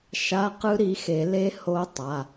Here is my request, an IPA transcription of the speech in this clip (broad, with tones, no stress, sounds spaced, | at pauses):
ʃ a˧˥˧ q ɯ˦˥ ɾ i˨˥ x e˨˩˦ l e˦˥ h o˦˥ tˤ a˩˧˩